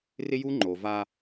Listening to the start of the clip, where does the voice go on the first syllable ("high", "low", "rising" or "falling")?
high